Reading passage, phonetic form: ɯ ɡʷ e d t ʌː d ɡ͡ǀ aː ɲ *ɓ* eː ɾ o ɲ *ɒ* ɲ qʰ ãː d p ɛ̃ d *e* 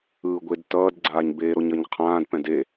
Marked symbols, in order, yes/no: no, no, yes

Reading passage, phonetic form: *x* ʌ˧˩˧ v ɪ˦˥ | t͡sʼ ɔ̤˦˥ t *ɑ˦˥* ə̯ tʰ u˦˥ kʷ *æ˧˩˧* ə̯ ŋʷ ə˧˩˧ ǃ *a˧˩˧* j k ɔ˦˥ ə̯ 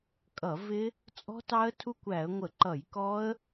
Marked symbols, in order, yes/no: no, yes, yes, no

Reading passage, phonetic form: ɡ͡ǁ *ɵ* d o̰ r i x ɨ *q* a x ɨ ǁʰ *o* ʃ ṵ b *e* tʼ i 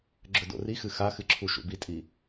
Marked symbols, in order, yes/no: yes, no, no, no

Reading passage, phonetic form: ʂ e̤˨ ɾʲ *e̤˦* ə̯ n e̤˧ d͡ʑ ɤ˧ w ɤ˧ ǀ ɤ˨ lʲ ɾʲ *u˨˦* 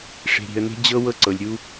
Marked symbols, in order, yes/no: no, no

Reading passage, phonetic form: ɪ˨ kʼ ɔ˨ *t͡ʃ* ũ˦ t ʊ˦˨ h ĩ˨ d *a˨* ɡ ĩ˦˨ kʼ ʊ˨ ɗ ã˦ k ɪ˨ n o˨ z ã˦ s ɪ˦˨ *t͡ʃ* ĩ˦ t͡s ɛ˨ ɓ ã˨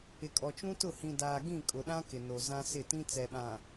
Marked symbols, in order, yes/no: yes, no, no

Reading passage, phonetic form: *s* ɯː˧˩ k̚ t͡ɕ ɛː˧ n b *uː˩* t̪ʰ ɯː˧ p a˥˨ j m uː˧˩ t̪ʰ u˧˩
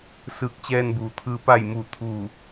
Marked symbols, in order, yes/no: yes, yes

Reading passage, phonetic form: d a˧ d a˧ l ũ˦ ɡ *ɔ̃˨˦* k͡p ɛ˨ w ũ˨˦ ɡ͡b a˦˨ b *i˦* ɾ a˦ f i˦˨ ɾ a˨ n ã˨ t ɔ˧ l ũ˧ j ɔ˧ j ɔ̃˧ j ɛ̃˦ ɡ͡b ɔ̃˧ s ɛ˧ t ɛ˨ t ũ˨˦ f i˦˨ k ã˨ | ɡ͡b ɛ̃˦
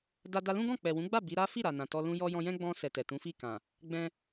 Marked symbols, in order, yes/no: no, no

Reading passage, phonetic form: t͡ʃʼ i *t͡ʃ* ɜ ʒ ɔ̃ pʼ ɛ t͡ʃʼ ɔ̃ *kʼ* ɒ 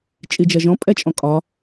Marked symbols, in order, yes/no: no, yes

